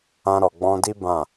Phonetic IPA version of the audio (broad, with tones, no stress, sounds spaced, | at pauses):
ã˧ ɾ ɔ˨ ɡ͡b ɔ̃˧ d i˦ b ã˦˨